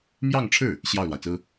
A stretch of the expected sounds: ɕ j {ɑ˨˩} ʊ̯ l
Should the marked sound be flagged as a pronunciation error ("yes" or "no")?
yes